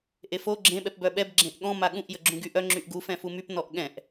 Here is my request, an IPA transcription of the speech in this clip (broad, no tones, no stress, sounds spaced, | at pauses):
ʔ e f o ɡ͡ǁ ẽ ɓ ɛ p b œ ɓ ɛ b ɡ͡ǁ ẽ ʔ ɠ ɔ̃ m a ɠ ũ ʔ j ə ɡ͡ǁ ũ ɡ y ʔ œ ŋ͡ǁ y ʔ ɡ u f ɛ̃ f u m y p n ɔ ʔ ɠ ɛ̃ ʔ